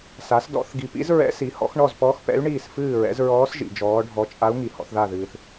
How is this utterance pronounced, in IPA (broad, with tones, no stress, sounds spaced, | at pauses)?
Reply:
s a˩˥ s d ɔ̰˩˥ θ ɡ i˨ p ḭ˧˥ z ɹ ɛ̰˧˥ s i˩˥ h ɔ̰˩˥ x ɳ ɔ˥˨ z p ɔ˧˥ x p ɛ̰˧˥ y̯ ɳ iː˥˨ s f ɨː˥˨ ɹ ɛ̰˩˥ z ɹ ɔː˧˥ s ʒ ḭ˨ d͡ʒ ɔː˧˥ ɖʱ ɔ˧˥ t͡ʃʼ a˧˥ u̯ ŋ i˨ h ɔ̰˩˥ θ ð a˥˨ ð ɨː˨ θ